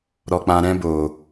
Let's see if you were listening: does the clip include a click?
no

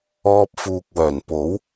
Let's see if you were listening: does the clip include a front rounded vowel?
yes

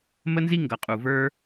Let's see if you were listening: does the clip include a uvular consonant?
yes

